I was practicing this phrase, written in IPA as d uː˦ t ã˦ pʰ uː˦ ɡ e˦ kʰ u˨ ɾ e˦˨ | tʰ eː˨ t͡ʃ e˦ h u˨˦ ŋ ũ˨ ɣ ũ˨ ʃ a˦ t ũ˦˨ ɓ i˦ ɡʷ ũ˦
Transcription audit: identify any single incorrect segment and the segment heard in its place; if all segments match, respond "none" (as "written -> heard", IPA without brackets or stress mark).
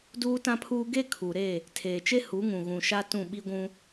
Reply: none